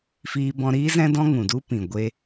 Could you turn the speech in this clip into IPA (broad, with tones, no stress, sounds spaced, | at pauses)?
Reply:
f iː˧ b ɔ̃˧ ɾ iː˦ z ɛ̃˦ d ɔ̃˦ ŋ ũ˨ d u˦ p ĩ˨ ɡʷ e˧